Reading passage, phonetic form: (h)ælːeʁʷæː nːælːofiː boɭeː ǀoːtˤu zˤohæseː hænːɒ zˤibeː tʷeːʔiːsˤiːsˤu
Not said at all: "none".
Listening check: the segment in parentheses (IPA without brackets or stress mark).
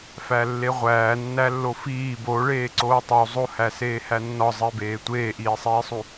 f